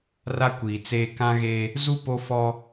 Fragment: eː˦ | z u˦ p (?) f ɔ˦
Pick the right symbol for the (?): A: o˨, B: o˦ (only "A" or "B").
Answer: B